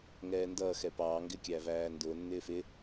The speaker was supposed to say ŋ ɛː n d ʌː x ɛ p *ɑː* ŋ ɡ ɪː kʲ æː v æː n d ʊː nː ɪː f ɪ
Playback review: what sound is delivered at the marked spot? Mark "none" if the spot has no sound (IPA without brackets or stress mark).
ɑː